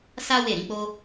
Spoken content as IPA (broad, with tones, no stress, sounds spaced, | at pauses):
s a˦ w e˦˨ ɾ ĩ˨˦ k͡p o˦